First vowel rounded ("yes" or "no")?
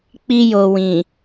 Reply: no